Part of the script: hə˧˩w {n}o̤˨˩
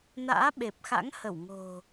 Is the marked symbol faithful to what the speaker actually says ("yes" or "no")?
no